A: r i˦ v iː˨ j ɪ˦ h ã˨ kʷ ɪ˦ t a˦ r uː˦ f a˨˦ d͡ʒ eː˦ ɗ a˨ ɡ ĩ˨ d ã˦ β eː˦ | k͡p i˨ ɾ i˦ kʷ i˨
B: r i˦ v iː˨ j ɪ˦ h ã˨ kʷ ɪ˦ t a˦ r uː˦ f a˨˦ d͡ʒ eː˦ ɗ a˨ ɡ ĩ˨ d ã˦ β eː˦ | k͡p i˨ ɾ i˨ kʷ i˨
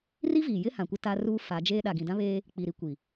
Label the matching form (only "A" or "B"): A